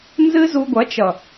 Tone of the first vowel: high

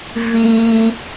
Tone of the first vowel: high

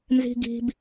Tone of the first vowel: high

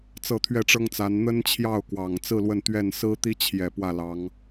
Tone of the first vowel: falling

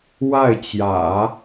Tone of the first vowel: falling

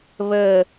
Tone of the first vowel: falling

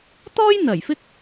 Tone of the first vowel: high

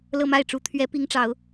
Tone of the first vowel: falling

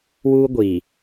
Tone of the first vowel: high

